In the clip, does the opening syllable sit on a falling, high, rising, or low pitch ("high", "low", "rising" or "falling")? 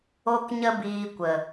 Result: high